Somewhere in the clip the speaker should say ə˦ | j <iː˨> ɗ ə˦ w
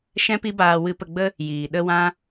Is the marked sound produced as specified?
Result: yes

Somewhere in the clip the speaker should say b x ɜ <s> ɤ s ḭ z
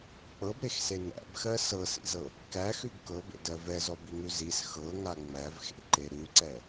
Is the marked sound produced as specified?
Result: yes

